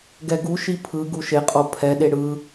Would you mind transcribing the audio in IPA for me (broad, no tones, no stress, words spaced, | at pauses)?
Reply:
ɡɛɡuʃi pʰɯ ɡuʃeqʼo pʰɛɗe ɽɯ